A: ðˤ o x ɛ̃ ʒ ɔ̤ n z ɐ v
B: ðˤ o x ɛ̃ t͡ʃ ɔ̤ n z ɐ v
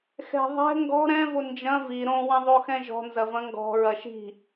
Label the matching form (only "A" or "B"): A